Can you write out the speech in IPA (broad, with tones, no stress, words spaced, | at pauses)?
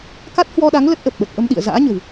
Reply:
ka˦˥t̚hwɔ˧ɗa˨˦ŋ lə˦˥t̚ʔə˨˩p̚ɓə˨˩t̚ ʔə˧mɗḭ˧˨ə̯ za̰ː˧˥ɲə̤˨˩w